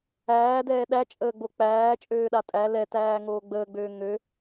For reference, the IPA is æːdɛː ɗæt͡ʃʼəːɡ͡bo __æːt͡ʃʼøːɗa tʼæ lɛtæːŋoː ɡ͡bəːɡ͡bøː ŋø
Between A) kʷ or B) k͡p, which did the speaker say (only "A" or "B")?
B